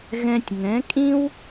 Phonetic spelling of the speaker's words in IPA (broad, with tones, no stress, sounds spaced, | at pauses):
ɣ ɛ̃˧ tʲ ŋ ɛ̃˨˦ kʼ ĩ˦ w